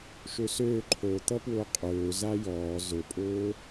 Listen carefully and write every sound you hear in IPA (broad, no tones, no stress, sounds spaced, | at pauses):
ʃ ø s øː ǃʰ o t̪ ʌ p w ʊː qʼ øː z a j ɔː z ʊ pʼ ʊː